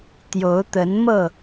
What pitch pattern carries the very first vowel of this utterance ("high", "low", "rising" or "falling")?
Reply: rising